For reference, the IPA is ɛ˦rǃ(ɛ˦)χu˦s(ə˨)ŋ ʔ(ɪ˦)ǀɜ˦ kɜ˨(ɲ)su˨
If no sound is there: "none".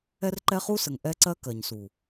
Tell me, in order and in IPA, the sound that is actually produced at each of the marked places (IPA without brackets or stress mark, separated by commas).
ɛ˦, ə˨, ɛ˦, ɲ